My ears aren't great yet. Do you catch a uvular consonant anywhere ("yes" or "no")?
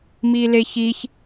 no